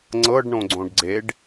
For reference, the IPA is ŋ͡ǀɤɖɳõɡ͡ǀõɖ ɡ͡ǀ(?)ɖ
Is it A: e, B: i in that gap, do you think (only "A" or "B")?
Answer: A